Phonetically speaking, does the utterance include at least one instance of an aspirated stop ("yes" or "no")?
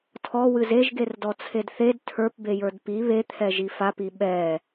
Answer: yes